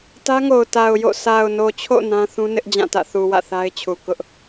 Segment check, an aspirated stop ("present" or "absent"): present